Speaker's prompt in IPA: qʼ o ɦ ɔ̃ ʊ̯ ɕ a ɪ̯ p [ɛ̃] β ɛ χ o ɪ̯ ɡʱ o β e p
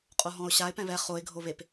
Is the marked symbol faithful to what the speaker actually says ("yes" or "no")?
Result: yes